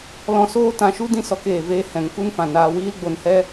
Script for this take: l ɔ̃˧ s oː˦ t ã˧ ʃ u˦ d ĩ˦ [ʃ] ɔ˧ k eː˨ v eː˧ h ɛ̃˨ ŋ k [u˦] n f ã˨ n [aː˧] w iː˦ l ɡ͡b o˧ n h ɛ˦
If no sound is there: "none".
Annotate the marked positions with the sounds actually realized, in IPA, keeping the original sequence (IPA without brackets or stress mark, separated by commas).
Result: s, u˦, aː˧